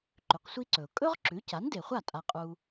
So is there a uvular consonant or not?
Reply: yes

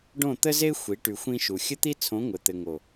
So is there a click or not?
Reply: no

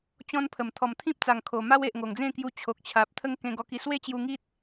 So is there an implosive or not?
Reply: no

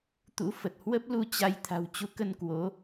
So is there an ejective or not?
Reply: no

